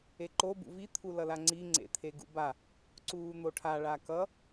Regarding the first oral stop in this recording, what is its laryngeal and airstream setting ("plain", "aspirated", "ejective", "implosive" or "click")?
click